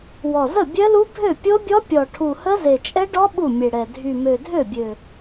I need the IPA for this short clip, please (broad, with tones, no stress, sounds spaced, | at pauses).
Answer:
w ɔ˨˩ z ə˥˩ bʲ œ˦˥ l u˦˥ bʱ ø˥˩ pʲ o˦˥ bʲ ɔ˦˥ pʲ ɔ˨˩ ʈʰ u˨˩ h ə˦˥ z e˨˩ t͡ʃʼ ɛ˦˥ ɖ ɔ˦˥ ɓ u˥˩ mʲ e˨˩ ɽ ɛ˨˩ dʱ y˨˩ m ø˨˩ dʱ ø˥˩ bʲ ø˨˩